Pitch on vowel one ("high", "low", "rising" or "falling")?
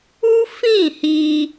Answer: high